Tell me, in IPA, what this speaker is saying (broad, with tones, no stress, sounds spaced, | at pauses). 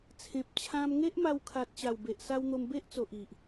t͡sʰ ẽ˨ p̚ t͡ɕʰ ã˧ m ŋ e˦ ʔ m a˧ w kʰ a˨ t̚ ɕ a˨˩ w b e˨ ʔ s a˧ w n̪ o˧ m b e˦ ʔ t͡s o˨ ʔ i˨ ʔ